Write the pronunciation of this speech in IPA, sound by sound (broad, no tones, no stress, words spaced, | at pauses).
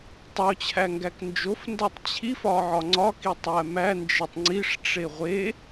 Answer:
tˤot͡ɕʰæŋɡæk nd͡ʒofndætˤ t͡ɕʰifɒʕɒ ŋ͡ǀɒkitˤæ mænd͡ʒetˤ ŋ͡ǀiʂʈ͡ʂe ʁʷe